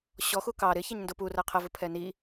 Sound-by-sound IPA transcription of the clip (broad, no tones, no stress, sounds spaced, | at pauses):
ɕ ɔ x u k ɑ ɾ ɪ ç ɛ ɲ n d ʊ p u r ɜ qʰ ə v ʊ pʰ ɛ n i